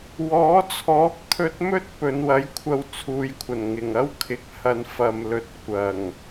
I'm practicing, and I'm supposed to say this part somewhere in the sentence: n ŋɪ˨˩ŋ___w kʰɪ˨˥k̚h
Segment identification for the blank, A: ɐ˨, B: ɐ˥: B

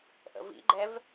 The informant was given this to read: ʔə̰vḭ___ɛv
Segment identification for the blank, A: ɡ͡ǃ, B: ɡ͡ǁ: A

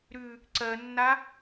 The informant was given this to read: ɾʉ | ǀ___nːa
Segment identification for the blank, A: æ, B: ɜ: B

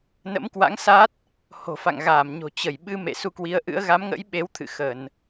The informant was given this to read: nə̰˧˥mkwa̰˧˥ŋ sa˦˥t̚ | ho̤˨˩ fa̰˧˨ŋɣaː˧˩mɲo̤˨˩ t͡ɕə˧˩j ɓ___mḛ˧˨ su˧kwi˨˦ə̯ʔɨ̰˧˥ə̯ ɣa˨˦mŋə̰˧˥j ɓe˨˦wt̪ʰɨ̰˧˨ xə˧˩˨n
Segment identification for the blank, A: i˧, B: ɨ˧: B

